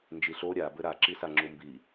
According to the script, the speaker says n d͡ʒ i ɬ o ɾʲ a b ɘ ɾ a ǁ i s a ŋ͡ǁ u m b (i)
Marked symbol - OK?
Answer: yes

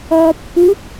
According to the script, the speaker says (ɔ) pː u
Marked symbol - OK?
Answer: yes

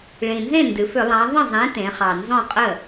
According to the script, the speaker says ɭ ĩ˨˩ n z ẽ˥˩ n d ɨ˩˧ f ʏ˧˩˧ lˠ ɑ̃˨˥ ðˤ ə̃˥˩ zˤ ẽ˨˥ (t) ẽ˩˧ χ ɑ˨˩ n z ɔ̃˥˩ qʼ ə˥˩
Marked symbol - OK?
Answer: yes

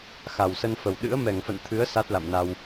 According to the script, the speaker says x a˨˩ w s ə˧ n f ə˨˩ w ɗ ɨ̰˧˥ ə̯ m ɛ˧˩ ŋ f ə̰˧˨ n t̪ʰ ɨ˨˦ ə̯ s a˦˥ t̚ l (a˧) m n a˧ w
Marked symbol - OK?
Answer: no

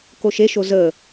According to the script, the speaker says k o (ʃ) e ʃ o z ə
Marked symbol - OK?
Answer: yes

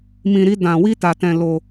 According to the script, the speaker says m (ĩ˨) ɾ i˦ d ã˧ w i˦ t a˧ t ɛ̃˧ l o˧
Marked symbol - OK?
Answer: no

